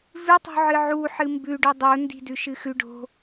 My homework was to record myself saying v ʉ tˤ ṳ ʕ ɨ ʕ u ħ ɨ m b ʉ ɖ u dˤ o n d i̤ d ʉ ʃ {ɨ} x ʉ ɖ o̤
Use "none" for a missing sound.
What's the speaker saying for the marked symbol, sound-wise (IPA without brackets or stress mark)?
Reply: ɨ